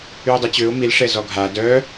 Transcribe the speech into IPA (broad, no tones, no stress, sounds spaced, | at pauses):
y ʊ̯ dˤ e t͡ɕ ø ʊ̯ m i l ʂ ɛ z ɔ ɡʱ a d œ